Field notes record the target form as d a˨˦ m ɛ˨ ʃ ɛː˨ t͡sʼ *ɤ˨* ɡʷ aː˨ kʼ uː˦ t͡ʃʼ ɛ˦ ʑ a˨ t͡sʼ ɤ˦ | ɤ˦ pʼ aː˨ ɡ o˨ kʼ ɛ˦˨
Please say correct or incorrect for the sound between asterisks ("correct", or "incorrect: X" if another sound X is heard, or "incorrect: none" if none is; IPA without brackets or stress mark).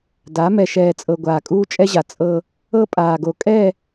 correct